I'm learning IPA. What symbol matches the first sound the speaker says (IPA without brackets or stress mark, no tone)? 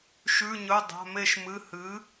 ʃ